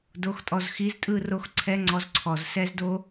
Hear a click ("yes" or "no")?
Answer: yes